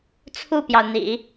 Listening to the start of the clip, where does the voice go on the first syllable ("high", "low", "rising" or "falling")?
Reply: falling